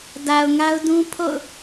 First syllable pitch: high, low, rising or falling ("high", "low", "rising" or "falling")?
low